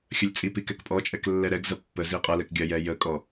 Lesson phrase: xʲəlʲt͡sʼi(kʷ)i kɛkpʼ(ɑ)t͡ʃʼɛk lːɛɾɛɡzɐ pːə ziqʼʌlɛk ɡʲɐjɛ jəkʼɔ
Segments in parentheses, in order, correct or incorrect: incorrect: p, incorrect: ɔ

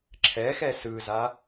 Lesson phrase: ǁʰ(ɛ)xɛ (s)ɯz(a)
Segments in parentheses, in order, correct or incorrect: correct, correct, correct

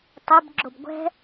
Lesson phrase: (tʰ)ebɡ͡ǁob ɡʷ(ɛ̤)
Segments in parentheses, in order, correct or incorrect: incorrect: tˤ, correct

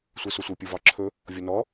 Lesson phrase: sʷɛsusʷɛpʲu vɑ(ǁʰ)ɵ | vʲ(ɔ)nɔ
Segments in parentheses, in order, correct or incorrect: correct, correct

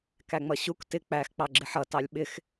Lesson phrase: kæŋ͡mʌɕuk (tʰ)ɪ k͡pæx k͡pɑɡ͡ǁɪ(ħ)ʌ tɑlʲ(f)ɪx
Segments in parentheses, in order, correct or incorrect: incorrect: t, correct, incorrect: ɓ

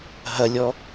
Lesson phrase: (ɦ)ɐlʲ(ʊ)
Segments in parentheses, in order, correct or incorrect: correct, incorrect: ɔ

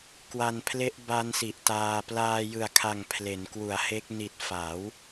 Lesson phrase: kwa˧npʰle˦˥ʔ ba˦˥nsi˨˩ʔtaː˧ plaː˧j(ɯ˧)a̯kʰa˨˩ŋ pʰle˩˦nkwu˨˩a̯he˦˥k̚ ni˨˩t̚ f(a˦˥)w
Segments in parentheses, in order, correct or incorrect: incorrect: ɯ˨˩, incorrect: a˩˦

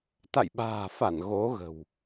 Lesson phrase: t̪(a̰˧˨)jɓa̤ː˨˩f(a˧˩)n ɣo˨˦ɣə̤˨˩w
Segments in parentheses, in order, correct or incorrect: correct, correct

